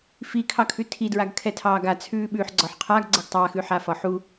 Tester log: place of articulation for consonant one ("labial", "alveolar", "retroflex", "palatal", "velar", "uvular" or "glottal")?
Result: labial